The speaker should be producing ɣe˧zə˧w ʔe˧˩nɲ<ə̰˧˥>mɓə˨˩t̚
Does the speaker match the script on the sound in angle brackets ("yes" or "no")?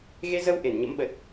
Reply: yes